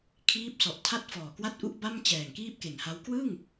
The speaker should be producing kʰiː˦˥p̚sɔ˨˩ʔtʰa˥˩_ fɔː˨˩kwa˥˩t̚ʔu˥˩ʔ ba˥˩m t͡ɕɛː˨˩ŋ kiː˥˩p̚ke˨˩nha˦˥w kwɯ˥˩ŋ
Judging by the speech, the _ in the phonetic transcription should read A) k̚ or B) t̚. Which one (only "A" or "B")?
B